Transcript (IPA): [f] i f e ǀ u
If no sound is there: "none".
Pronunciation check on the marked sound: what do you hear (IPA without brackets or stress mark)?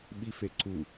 ɓ